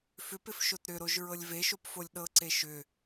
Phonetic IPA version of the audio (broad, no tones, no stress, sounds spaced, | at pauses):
f ʏ p ɪ f ʃ o t ɾ ʏ ɾ o ʒ ɹ ɤ lʲ v e ʃ o p f o lʲ ɗ ɤ ǀ e ʃ ʏ